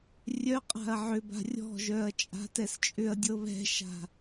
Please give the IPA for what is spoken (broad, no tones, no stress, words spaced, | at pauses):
rʲœqʼa̤ɐ̯ ʕʏba̤ rʲɔ̤ʒœɐ̯ t͡ʃʼa̤tɛst͡ʃʼʏɐ̯dʲɤ βɛ̤ʃa̤